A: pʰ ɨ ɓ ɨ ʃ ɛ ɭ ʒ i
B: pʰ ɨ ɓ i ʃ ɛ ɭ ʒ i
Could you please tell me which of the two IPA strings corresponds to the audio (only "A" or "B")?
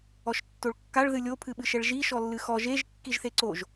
A